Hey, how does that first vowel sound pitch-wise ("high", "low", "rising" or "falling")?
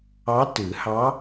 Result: rising